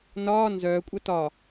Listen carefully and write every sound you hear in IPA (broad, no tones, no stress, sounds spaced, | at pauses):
n ɒː n z œː kʷʼ ɐ t ɒ